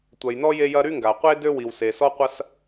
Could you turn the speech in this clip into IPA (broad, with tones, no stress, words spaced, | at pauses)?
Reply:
tʷœ˩jnɔ˥ je˥jɐ˥ ɾy˥ŋɡa˩qʷe˥ dø˥wi˩w se˩sɔ˥ qʷɐ˥s